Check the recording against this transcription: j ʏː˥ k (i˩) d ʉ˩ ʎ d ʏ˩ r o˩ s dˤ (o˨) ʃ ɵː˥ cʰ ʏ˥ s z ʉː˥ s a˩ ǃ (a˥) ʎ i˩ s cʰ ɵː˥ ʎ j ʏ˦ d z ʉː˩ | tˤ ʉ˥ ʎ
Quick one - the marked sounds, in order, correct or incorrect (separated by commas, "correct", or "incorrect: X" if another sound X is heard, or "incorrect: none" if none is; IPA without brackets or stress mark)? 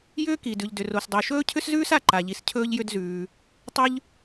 correct, correct, incorrect: a˩